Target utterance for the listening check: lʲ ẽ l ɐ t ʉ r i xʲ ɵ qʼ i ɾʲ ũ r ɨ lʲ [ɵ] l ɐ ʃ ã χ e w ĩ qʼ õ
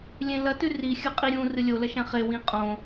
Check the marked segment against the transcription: incorrect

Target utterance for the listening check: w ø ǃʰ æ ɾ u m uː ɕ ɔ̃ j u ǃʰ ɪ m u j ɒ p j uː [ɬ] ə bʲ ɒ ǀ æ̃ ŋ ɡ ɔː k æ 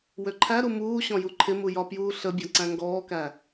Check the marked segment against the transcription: correct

